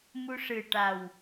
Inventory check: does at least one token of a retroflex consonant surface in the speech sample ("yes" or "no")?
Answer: yes